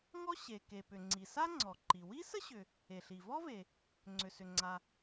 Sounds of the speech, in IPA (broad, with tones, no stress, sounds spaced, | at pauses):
ŋ ɔ˥ ɕ e˩ k e˩ p ʏ˩ ŋ͡ǀ i˩ s a˥ ŋ͡ǀ ɔ˩ ǃ i˩ w i˥ s ə˥ ɕ ʏ˩ | e˩ ɬ i˩ v ɔ˥ v e˩ | ŋ͡ǀ ʏ˩ s ʏ˩ ŋ͡ǀ a˩